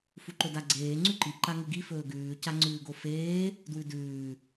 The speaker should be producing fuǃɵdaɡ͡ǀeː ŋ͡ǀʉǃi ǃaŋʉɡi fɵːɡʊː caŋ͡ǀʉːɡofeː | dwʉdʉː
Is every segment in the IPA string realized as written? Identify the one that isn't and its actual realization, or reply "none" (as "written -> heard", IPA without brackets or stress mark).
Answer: ʊː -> ʉː